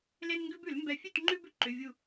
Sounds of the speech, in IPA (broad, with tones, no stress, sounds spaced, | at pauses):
l e˦ n ŋ ɡ ʉ˦ b ʉ˨˩˦ l m b ɛ˧˩ fʲ ʉ˥˩ t ŋ͡ǃ ʉ˦ b ʏ˦ ǃ ʏ˩˧˩ vʲ u˧˩